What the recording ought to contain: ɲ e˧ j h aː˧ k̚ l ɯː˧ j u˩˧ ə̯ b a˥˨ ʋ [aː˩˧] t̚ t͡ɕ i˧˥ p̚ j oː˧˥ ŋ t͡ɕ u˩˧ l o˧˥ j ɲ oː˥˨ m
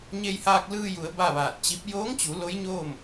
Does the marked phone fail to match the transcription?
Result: yes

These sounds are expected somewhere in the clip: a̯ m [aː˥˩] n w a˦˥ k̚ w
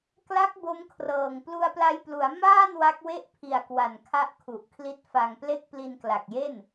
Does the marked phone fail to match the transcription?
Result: no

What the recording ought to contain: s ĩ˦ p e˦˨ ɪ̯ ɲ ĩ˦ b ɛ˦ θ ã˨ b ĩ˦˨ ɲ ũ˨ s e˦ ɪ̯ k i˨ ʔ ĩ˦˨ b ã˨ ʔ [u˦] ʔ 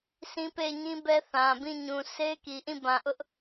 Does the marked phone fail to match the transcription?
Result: yes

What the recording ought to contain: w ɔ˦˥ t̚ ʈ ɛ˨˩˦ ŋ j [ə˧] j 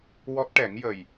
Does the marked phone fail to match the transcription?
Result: yes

